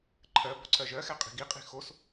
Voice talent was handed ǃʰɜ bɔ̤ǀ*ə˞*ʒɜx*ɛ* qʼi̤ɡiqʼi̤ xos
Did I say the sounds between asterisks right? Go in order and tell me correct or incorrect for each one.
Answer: incorrect: ɜ, correct

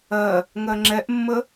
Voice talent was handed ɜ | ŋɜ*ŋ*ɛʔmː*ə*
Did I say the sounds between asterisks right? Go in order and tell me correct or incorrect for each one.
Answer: incorrect: ŋ͡ǁ, correct

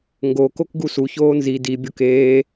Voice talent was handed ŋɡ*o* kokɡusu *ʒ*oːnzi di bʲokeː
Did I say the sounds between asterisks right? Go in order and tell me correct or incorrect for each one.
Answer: correct, incorrect: ç

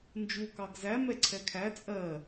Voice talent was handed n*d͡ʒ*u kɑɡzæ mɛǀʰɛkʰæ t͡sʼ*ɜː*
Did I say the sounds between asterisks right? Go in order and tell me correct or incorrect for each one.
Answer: correct, incorrect: ɜ

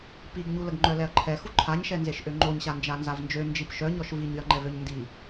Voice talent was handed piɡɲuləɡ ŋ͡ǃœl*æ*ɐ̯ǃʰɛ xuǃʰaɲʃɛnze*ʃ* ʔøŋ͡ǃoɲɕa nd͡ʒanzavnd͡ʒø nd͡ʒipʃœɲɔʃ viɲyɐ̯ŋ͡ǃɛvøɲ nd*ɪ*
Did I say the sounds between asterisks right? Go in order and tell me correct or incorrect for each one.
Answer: incorrect: ɛ, correct, incorrect: i

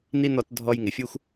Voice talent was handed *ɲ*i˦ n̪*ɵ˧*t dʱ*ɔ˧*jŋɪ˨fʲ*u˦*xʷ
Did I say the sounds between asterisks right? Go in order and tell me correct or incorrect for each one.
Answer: incorrect: n̪, incorrect: ɔ˧, correct, correct

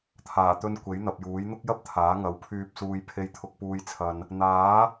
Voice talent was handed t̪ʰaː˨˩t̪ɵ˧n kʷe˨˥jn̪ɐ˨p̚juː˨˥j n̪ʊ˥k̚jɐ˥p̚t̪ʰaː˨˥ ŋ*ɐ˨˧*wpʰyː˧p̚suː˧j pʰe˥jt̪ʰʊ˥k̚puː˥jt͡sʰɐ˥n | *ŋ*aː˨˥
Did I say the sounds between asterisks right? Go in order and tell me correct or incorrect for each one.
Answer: correct, incorrect: n̪

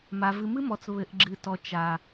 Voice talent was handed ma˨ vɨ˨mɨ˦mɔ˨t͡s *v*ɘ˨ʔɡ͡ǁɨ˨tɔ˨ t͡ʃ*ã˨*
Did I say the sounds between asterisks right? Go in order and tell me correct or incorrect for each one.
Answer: incorrect: β, incorrect: a˨

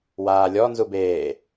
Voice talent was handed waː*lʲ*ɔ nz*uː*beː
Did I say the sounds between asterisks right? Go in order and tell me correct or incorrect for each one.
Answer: correct, incorrect: u

